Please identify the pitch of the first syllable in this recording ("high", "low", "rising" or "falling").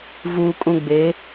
low